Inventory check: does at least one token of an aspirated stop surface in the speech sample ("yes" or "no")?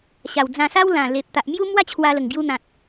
yes